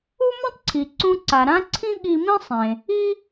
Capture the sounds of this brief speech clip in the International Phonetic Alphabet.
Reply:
u˥ m ũ˥ tˤ ǀʰ i˩ ǀ ũ˧ ǀ a˩ ɾ ã˥ ǀʰ ĩ˥ ɠ i˧ m ĩ˥ sˤ ẽ˩ | i˥

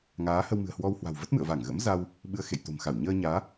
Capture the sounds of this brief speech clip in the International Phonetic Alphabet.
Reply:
ŋ aː˨˦ h ə˧ w m ɨ̤˨˩ ə̯ h w ɔ˧ w h w a̤˨˩ w v ə˦˥ t̚ m ɨ̰˧˨ ə̯ v a˧˩ ŋ ɣ ə̰˧˥ m z a˧ w | ɓ ɨ˧ ə̯ x ḛ˧˨ j t̪ o̤˨˩ m x a˧˩ w ɲ əː˧ ɲ aː˨˦

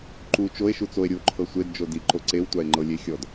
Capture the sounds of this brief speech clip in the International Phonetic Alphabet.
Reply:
ǃ u t͡ʃ o e̯ ʃ u t͡s o e̯ ɾʲ u o̯ ǃʰ ɤ sʷ e d d͡ʒ o d i ǃ o ǀ e w tʷ a e̯ ŋ͡ǃ ɤ lʲ e xʲ ɔ d

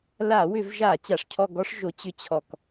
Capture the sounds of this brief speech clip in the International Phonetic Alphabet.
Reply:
l a˧˩˧ w ʏ˧˩˧ v ʒ a˧˩˧ t͡ɕ a˩ ʂ cʰ ɔ˦˨ ɡ ɔ˦˥ ʂ ʒ o˩˥ t͡ɕ ʏ˦˨ t͡ɕʰ ɔ˧˩˧ k

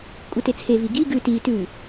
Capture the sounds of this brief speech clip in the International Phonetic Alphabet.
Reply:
kʷʼ ɯ t e t͡sʰ e v i ɡ i ɡ ʉ t i t ʉ

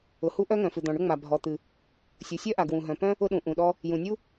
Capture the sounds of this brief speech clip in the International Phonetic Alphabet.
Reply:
ʊ˩ h u˥ ʔ œ˥ ŋ œ̃˩ f ɨ˩ d̪ ɔ̃˩ ɳ ʊ˥ ŋ͡m a˩ bʱ ɔ˩ t̪ ɨ˩ | sʲ u˩ sʲ œ˥ ʔ a˩ ɡ w ũ˩ ɦ œ̃˩ p œ̃˥ | ʊ˥ ɗ ũ˩ ʔ ũ˩ ɗ ɔ˥ | j ũ˩ nʲ u˥

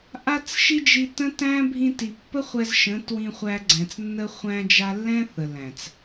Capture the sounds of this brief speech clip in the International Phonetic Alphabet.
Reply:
ʔ a˦ t͡s ʃ i˦ d͡ʒ i˧ t ə̃˦ t æ̃˦ bʱ ĩ˧ t i˨ pː ə˦ χʷ ɛ˧ z ʃ ə̃˨˦ t w ĩ˧ χʷ æ˧ ɡ͡ǀ æ̃˨ t͡s nː ə˧ χʷ æ̃˧ d͡ʒ a˧ lː ɛ̃˦ θ ə˨ l æ̃˨ t͡s

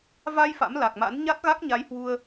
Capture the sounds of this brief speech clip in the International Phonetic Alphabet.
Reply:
v a˧ j f a̰˧˥ m l a˨˩ k̚ m a̰˧˥ n ɲ a˦˥ t̚ ɣ a˦˥ k̚ ɲ a˨˦ j h w u˧ ə̯

